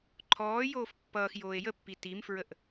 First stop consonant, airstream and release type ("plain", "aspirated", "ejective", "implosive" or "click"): click